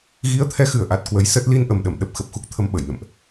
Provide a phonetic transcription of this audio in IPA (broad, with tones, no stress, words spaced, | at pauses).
ɣi˨˦ə̯t̪ʰɛ˨˦xɨ˧˩ə̯ʔa˨˩t̚ kwə˨˦jsə˦˥t̚ li˧nʔə˨˩mɗə˧˩m ɗə˦˥p̚xə˨˩p̚xu˦˥k̚t̪ʰə˧m ɓə˧˩jnə̰˧˨mʔ